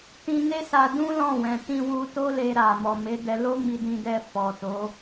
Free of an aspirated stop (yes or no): yes